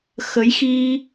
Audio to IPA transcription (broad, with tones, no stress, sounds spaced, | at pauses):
x ə˨˦ j x i˧